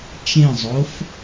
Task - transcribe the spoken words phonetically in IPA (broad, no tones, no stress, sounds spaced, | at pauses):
t͡ʃ ẽ zˤ o f